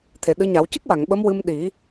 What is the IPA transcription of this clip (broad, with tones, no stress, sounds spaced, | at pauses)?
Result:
t̪ʰ e˨˩˨ ɗ ɨ˧˥ ɲ a˨˩˦ w c ɨ˦˥ k̚ w a˨˩˨ ŋ ɓ ə˧˥ m w ɨ˧ m ɗ i˨˩˦